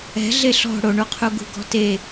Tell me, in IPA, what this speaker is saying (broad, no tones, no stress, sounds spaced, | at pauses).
ɛ̤ ɮ e ɬ ɔ̤ ɽ o ɳ u qʰ u ɡ ṳ ɡ ɔ̤ t e